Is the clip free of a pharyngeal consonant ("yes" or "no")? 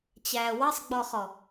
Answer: yes